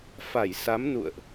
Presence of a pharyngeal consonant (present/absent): absent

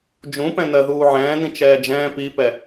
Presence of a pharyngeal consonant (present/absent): present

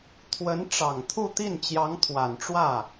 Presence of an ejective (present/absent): absent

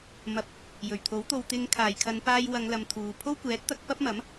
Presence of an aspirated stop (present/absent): present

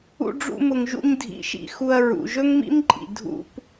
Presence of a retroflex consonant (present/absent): present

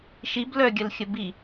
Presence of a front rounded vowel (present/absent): present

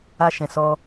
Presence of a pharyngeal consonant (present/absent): absent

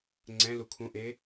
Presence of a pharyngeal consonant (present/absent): absent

